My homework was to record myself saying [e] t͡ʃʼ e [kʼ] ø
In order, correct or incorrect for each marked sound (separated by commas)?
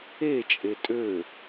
correct, incorrect